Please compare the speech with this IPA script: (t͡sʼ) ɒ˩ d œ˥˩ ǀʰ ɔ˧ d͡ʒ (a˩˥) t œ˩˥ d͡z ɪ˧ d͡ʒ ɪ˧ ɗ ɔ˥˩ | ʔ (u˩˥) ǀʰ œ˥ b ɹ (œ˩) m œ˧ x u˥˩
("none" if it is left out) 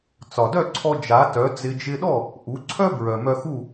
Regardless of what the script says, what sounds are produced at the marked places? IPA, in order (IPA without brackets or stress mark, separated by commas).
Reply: t͡s, a˩˥, u˩˥, œ˩